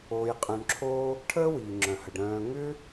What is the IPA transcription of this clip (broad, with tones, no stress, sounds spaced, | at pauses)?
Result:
oː˧ j qʼ œ̃˧ ɳ ǁʰ oː˦ | ʈʰ əː˦ w iː˨ ŋ͡ǁ œ̃˨ h ə˨ ɖ ɾ œ̃ː˧ ŋ ʏ˦